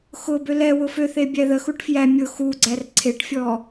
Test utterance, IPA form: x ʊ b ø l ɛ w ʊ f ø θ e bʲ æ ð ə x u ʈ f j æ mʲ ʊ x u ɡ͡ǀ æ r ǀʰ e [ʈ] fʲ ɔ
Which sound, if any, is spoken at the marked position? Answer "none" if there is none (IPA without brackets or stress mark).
ʈ